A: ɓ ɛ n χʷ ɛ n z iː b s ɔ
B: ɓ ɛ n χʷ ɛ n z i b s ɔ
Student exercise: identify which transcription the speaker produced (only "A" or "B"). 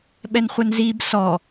A